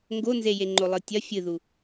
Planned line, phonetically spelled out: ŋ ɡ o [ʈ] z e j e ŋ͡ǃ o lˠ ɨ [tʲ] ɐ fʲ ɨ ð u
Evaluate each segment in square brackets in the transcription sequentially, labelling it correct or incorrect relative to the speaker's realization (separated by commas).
incorrect, correct